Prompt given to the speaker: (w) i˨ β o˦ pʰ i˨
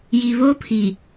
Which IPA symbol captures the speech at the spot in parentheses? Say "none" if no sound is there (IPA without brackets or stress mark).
j